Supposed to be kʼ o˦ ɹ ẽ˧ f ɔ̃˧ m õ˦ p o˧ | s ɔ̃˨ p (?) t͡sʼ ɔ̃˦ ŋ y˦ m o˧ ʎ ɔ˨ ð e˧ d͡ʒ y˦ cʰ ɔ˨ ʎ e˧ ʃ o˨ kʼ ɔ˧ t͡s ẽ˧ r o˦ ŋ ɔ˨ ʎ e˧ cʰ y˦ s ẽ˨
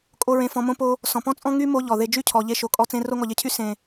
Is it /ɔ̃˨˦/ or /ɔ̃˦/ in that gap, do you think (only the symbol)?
ɔ̃˦